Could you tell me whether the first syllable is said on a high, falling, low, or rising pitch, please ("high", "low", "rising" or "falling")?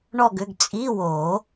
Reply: falling